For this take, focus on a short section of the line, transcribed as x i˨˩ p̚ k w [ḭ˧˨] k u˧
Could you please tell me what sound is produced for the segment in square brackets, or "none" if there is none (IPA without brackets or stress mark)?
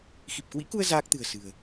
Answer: ḭ˧˥